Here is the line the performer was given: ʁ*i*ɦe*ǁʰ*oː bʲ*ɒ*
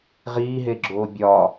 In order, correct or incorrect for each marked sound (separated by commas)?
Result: incorrect, incorrect, correct